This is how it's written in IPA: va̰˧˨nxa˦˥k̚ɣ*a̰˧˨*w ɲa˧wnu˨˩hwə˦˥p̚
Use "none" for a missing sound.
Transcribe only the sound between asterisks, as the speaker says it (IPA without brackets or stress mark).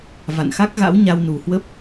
a̰˧˥